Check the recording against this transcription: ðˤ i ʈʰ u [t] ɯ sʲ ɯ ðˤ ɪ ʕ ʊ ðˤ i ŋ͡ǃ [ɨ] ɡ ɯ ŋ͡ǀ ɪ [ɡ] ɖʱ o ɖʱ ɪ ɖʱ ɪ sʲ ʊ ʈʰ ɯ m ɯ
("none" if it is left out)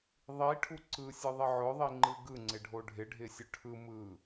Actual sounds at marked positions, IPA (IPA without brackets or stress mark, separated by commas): ǀ, ɨ, none